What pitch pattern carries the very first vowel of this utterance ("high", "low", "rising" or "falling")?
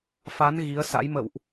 rising